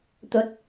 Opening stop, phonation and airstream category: plain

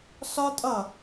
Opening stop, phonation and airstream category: ejective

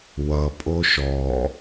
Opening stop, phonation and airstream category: ejective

